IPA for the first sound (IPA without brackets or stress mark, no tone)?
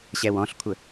ɕ